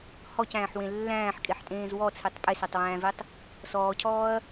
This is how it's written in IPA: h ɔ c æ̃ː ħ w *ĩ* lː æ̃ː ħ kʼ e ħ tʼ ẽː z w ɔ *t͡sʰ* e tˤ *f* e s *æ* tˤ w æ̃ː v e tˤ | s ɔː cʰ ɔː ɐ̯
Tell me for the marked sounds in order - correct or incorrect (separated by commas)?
incorrect, correct, incorrect, correct